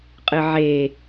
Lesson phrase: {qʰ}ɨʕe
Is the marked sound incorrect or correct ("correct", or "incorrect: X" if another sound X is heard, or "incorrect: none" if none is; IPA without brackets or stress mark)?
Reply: incorrect: qʼ